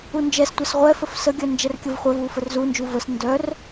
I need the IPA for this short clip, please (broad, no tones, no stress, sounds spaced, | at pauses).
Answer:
u n d͡ʒ ɛ s tʷ ɛ s ʁʷ ɛ f ə f s ə ɡʲ œ n d͡ʒ ɛ r kʲ ə v χʷ œ v u f ə r z u n d͡ʒ u v ə s n d œ r